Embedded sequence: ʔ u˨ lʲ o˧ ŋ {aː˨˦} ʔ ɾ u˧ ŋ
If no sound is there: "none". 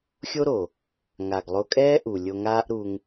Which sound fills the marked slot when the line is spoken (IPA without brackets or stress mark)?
aː˦